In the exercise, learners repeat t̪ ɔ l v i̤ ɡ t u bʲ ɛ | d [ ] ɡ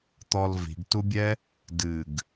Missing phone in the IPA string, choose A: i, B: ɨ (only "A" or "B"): B